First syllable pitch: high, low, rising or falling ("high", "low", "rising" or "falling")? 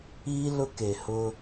high